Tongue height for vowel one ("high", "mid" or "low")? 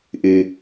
high